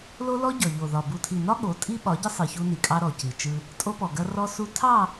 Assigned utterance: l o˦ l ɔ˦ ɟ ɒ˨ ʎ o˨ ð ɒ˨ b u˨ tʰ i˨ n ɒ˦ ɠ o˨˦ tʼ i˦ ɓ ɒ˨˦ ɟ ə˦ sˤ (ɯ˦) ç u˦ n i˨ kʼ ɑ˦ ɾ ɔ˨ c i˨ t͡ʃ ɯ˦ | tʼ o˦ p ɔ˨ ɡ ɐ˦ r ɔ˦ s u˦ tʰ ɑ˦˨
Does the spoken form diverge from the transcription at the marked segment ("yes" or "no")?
yes